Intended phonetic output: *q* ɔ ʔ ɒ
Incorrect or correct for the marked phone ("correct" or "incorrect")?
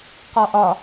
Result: correct